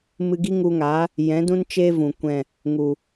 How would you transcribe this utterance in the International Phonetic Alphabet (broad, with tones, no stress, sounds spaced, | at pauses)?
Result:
m ɨ˧ ɡ i˦ ŋ u˧ ŋ a˨˦ | j ɛ̃˨˦ d ũ˦ n t͡ʃ eː˧ v ũ˨ kʷ ɛ̃˦˨ | ŋ u˨